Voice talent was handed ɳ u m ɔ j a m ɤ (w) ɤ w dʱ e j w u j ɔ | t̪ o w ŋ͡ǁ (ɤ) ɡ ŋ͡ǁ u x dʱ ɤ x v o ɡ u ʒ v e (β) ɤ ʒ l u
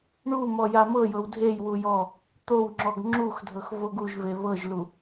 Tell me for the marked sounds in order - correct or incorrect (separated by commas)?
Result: incorrect, incorrect, correct